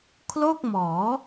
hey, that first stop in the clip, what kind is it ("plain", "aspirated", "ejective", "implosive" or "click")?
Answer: aspirated